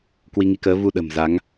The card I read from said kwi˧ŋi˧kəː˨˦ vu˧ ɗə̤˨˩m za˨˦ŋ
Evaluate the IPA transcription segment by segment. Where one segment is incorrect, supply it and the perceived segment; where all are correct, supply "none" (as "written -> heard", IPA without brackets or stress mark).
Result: none